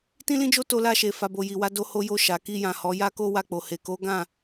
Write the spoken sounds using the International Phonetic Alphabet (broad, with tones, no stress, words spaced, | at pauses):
tĩ˦lĩ˦d͡ʒo˦ to˧la˧ʃe˨ fa˨bo˨ ji˨wa˨˦ do˧ho˧jo˧ ʃa˨ki˧jã˨ hɔ˨˦ ja˦ko˦wa˧k͡po˨ he˨ko˨˦ɡã˦˨